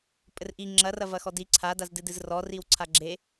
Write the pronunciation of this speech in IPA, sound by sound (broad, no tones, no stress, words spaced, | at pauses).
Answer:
pʼɘrʔi ŋ͡ǁɐrɐ vɐxɔdi ǀʰadazdɨ dɨzrɔriwǀʰa ɡ͡ǁe